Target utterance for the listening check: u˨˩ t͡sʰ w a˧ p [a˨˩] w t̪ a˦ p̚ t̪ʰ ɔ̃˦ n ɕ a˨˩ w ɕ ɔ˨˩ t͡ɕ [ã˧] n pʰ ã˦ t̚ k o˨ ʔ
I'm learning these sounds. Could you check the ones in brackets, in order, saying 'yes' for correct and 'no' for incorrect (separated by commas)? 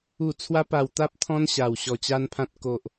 yes, no